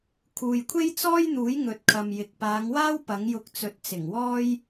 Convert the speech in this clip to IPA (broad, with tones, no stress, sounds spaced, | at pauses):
kʰ uː˨ j kʷʰ e˥ j t͡s ɔː˥ j n̪ uː˨˥ j ŋ ɵ˨ t̚ kʰ ɐ˨ m j ɪ˨ k̚ p aː˨˧ ŋ w aː˥ w p ɐ˨˥ ŋ j ʊ˧ k̚ t͡s ɵ˨˥ t̚ t͡s ɪ˨˩ ŋ w ɔː˥ j